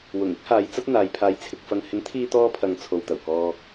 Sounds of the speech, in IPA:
w ʊ˨˩ ŋ ɪ˥ k̚ h aː˨˧ j t͡s ɐ˥ t̚ n̪ aː˨˧ j pʰ aː˧ j t͡sʰ ɪ˧ k̚ f ɐ˧ ŋ h ɪ˨˥ ŋ t̪ʰ iː˧ t̪ ɔː˧ pʰ ɐ˨ ŋ t͡sʰ o˨ w t̪ ɐ˨˩ w k ɔː˧

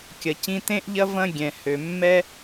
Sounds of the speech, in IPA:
kʲ ɐ˩ c ĩ˧ t ẽ˥ ʔ ʎ ɐ˥ v ɐ̃˥ ɡʲ ɛ̃˩ h ø˩ mː ɛ˥

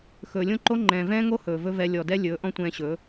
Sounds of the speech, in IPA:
x ɵː˨ lʲ õ˦ ǃ o˦ ŋ͡ǃ ɛ̃ː˨ v ɛ̃ː˦ ŋ o˦ h ɵː˨ v ɵ˦ v ɛ˧ lʲ ɔ˨ d ɛ˦ lʲ ɵː˨˦ ʔ ɔ̃˦ tʷ ɛ̃ː˧ ɕ ɵ˨˦

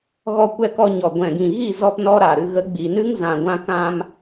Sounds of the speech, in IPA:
ɣ ɔ˧ kʷ ɛ˧ k ɔ˧ ɲ ɔ˨ ɡʷ ɛ̃˨ ɡ ĩ˨ ɣ i˦˨ z ɔ˧ p n ɔ˦ ɾ a˨ ɾ ɨ˧ ɣ ə˨˦ ɡ͡b i˨ n ɨ˦ ŋ z ã˨ ɡʷ ã˧ k ã˧ m

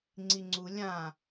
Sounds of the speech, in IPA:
ŋ͡ǀ i ŋ͡ǀ u lʲ ã

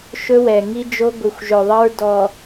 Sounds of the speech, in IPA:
ʃ ɵ˦ w ɛ˨ ŋ i˦ d͡ʒ o˦ ɡʷ i˨ xʷ ʒ ɵ˨ ðˤ ʌ˦ ɹ d ɔ˨

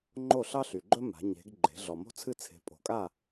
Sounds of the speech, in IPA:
ŋ͡ǃ o˥˨ ɬ ɑ˥ ɬ y˨ ɡ͡ǃ ɵ˥ m a̤˨˦ ɲ e̤˨˦ ɡ ɡ͡ǃ e̤˨˦ ɮ ɔ˨ m o̤˥ t͡sʰ ɨ˥˨ t͡sʰ e̤˨˦ pʼ o̤˨˩˦ kʼ a˥˨

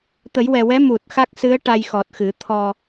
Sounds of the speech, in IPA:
t̪ ə˨˩˦ j w ɛ˨˩ w ɛ˧˥ m u˨˩ t̚ x a˦˥ k̚ s ɨ˧˥ ə̯ ʈ a˧ j x ɔ˨˩ t̚ x ɨ˨˩˦ t̪ʰ ɔ˧

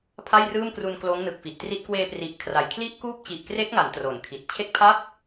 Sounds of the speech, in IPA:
pʰ a˥˩ j r ɯː˥˩ m k r u˧ n k l oː˦˥ ŋ n ɯ˨˩ k̚ f i˨˩ ʔ t r i˦˥ t̚ k w eː˧ p r i˨˩ ʔ kʰ r a˨˩ j kʰ l i˦˥ ʔ k uː˦˥ p̚ t͡ɕ i˨˩ ʔ k r e˦˥ k̚ ŋ a˩˦ n t r o˩˦ n kʰ i˨˩ t̚ t͡ɕʰ e˦˥ k̚ pʰ a˥˩ p̚

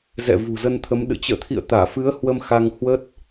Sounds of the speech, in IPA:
z ɛ̰˧˨ v ṳ˨˩ z ə˧ n t̪ʰ ə˨˦ m ɗ ɨ̰˧˨ t͡ɕ ə̰ː˧˨ t̪ʰ ḭ˧˨ ə̯ t̪ aː˧˩ f ɨ˨˦ ə̯ h w ə˧ m x a˧ ŋ h w ə˦˥ t̚

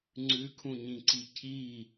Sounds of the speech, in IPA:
ŋ͡ǀ ʉ kʰ ũ ɲ ĩ ǀ i cʰ i

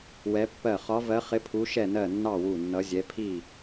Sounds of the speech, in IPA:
w ɛ˨˦ pː ɜ˧˩ χ ɒ˨˦ v ɜ˨˦ χ ɪ˨˦ pʰ u˨˦ ʃ ɛ˧˩ n ɜ˧˩ nː ɑ˧˩ w u˧˩ nː ʌ˨˦ zʲ ɛ˨˦ pʰ i˧˩

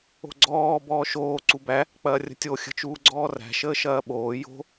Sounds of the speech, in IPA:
o̤ ɡ͡ǀ ɔː b ɔː ʃ oː ǀ u b æ | k͡p ɐː rʲ ə̤ tʲ o xʲ ə̤ t͡ʃ uː ɡ͡ǀ ɔː r æ̤ ʃ əː ʃ ɐː ɓ oː j o̤

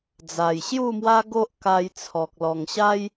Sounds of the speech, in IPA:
d͡z a˨˩ j ɕ j u˥˧ m w a˦ ɡ o˦ ʔ k a˧ j t͡sʰ ɔ˨ k̚ l ɔ˨˩ ŋ ɕ a˦ j

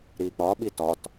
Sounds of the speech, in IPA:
ɾ i k͡p ɒ ɓ i t ɒ t

